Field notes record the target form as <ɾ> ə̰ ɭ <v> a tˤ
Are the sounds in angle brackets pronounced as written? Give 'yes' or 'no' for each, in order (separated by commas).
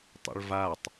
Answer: no, yes